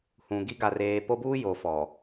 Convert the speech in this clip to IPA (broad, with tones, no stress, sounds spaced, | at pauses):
h ũ˨ ɡ i˦ ɡ a˨ r eː˨ p o˦ b uː˦ j o˨ f ɔ˨